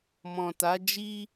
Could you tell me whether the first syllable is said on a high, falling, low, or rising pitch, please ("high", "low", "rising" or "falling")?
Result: low